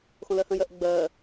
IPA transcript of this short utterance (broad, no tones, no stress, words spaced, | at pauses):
xõlɜhə̃jɜʔ ɡ͡bɜ